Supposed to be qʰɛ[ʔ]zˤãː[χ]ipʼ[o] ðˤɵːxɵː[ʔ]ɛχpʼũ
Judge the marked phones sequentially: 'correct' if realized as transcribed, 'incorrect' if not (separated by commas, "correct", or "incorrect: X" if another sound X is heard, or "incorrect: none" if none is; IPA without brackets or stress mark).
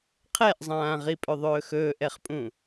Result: correct, incorrect: ʁ, incorrect: ɵ, correct